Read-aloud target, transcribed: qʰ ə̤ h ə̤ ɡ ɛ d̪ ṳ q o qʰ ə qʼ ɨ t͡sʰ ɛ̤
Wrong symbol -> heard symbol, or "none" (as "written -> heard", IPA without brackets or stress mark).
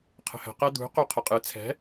ɡ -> q